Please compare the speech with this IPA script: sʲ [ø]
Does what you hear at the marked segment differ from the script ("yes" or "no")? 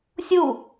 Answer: yes